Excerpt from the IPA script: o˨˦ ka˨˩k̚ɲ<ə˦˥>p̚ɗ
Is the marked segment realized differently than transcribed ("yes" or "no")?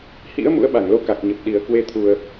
yes